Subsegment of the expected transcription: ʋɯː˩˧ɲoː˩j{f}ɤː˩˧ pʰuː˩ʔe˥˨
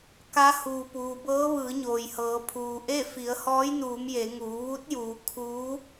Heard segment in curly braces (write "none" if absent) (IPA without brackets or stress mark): h